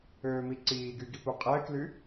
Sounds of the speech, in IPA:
øː m i ǀ iː ɡ y ɡ i p u qʼ ɛː k l y

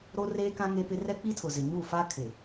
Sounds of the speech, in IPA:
ɾ o˦ r eː˦ k ã˦ ŋ e˦ p ɪ˦ r ɛ˦ k͡p i˦ tʰ ʊ˨ z ɪ˨ ɲ u˦˨ f a˦ kʰ ɪ˨

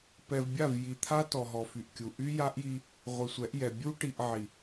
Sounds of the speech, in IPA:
p ɛ˨ v bʲ a˦˨ v j i˨ t̪ʰ a˦ t ɔ˨ ɦ ɔ˨ f y˨ ʔ kʲ u˨ ʔ y˦ j a˦ ʔ j i˦ | ʁʷ i˨ sʷ ɛ˨˦ ʔ j ɛ˨ bʲ u˦ ʈ i˨ ʔ ʕ i˨

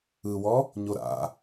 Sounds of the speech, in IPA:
ɯ w ɔ | ɲ o ɾ a̰

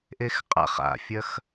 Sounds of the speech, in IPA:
ʔ e x qʼ a̰ χ a̰ fʲ ɐ x

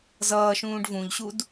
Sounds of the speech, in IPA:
z ʌː ʃ ũː ɖ v ũ ʎ ɕ u d

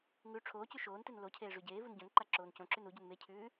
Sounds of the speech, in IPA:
ŋ ʉ ʈ͡ʂʰ oː c ʉ ʃ oː n t e n l o cʰ eː ʐ ʉ ɟ eː v u n ɟ õ n ǃ a ǁ oː n c õ ǁ ʉ n u ɟ u n m e cʰ ʉː

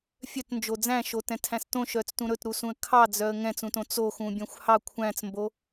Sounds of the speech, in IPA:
fʲ œ t n d͡ʒ o d͡z æ̃ ʃ o t ɛ̃ tʰ æ̃ s t õ ʃ œ t͡s t ũ ɾ ɵ t ɾ u s ũ ə̯ kʰ ɑ d͡z œ ə̯ ŋ ɛ̃ t͡s ũ t õ t͡s o x ũ bʲ œ̃ xʷ h ɑ kʷʰ æ̃ t͡s m b o

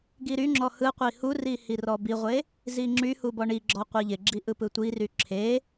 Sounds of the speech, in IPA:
ɡ i ɾ y ŋ͡ǁ ɔ h ɯ qʷ i h u r i h i r ɔ b i ʁʷ e | z i ŋ͡ǁ y h u b ɔ ɳ i ɡ͡ǁ ɔ qʷ i ʎ ɪ ɡ͡ǁ i ʔ ɯ p ɯ tʷ i r y ǁʰ e

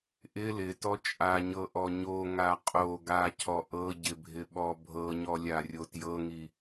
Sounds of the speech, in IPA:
ʔ ɪ l ɪ t ɔ t͡ʃʼ a ɲ ɤ ʔ ɔ ɲ o ŋ a qʼ o ɡ a cʰ ɔ ʔ ɤ ɟ ɪ bʱ ɪ ɓ ɔ bʱ ɤ ɲ ɔ lʲ a rʲ o t j ɤ ŋ i

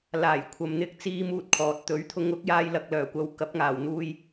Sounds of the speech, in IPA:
l aː˨˩ j kʷʰ ɐ˨ m n̪ ɪ˧ k̚ t͡s iː˥ m uː˥ t̚ kʰ ɔː˨ t̚ t̪ ɵ˨˥ ɥ t̪ʰ ʊ˧ ŋ ʊ˨˥ k̚ j aː˧ j l ɐ˨ k̚ l œː˨˩ kʷ ɐ˨ w k ɐ˨˥ p̚ ŋ aː˨˩ w n̪ uː˧ j

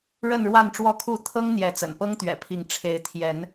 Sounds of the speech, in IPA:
ɻ ə˥˨ n ɻ w a˥˨ n ʈ͡ʂ w ɔ˥˨ kʰ u˥˨ t̪ʰ ɤ˦ ŋ n̪ j ɛ˨˦ t͡s ə̰˨˩ n p ɤ˦ ŋ t̪ ɥ ɛ̰˨˩ pʰ i˨˦ ŋ ʈ͡ʂʰ e˨˦ ɪ̯ t̪ʰ j ɛ˨˦ n

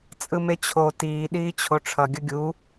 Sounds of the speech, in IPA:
t͡sʼ ɯ m e t͡ɕʰ o t iː ɗ iː t͡ɕʰ o ʈ͡ʂʰ ʌ ɡʲ ʌ ɡʲ u

